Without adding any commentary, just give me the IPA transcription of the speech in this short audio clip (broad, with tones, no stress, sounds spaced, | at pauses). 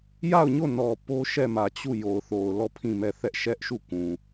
j a˦˨ ʊ̯ ɲ o˦˨ n ɔ˨ p o˦ ʃ ɛ˦˨ m ä˨ t͡ɕ u˦˨ j o˨ ʊ̯ θ o˨ ʊ̯ l ɔ˦˨ pʰ ĩ˦˨ m ɛ˦˨ θ ɛ˦ ʔ ʃ ɛ˦ ʔ ʃ u˦˨ k ũ˨